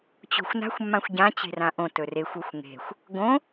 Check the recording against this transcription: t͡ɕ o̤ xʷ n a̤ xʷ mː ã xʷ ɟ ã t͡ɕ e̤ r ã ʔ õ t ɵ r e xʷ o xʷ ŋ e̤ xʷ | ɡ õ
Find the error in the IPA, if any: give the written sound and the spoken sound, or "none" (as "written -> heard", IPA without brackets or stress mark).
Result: none